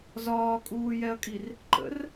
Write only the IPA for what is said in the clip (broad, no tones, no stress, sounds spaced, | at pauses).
z ɒː kʼ uː j ɛ ɐ̯ kʼ i r | ǃ ə̰ r